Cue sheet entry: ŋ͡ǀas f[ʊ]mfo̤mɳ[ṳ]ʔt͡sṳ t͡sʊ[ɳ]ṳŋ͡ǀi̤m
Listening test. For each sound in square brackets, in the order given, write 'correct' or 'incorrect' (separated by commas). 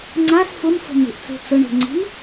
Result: correct, correct, correct